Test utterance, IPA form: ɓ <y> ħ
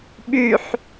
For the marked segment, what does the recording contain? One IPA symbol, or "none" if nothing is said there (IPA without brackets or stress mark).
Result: y